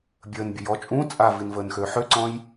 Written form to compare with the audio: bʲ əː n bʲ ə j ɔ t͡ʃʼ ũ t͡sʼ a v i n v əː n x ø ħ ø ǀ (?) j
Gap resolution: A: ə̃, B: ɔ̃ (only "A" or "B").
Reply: B